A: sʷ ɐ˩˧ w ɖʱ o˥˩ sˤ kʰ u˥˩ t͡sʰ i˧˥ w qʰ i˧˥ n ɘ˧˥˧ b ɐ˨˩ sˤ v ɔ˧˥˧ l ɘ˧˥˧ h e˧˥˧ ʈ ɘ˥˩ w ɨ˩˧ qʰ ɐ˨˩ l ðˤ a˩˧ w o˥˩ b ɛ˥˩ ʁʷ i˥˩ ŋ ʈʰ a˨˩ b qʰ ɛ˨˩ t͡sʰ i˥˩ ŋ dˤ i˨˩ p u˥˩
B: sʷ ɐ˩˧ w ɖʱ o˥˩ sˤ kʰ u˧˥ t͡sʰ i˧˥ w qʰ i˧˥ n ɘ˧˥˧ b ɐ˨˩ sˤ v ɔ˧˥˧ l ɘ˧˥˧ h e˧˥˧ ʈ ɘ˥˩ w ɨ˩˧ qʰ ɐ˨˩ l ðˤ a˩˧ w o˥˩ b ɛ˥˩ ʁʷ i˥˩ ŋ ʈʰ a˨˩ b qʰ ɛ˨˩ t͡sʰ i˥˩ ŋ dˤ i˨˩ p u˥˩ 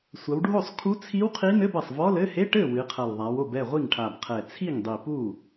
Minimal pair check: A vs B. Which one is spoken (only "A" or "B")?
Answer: B